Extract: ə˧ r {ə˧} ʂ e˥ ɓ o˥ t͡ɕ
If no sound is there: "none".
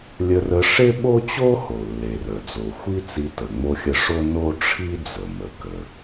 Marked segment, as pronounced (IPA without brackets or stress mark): ə˧